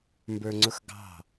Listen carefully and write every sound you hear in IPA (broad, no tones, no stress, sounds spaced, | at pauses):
m b ə˞ ŋ͡ǀ ʊ x ɡ ɑ̤